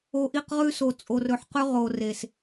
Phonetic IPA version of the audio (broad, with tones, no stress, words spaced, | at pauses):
o˨ʔi˦˨qʁʉ˦so˨ t͡sʼo˨rɵ˨ħqʉ˦ ʁo˨re˨s